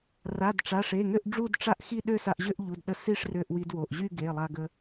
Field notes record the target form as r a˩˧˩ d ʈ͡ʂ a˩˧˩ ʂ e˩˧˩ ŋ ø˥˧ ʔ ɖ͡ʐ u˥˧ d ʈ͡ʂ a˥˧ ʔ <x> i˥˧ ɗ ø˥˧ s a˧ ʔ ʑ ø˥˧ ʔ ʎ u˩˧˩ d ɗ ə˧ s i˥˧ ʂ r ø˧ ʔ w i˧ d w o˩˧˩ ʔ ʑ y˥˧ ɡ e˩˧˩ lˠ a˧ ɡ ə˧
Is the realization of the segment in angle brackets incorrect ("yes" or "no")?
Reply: no